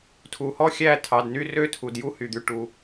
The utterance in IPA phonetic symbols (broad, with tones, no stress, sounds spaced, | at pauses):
tʰ u˩ h ɔ˥˨ xʲ æ˥˨ tʰ ɑ˩˧˩ d n y˥˨ r ø˥˨ tʰ u˩ d j u˥˨ h y˩ d̪ y˧˩ ʈ u˩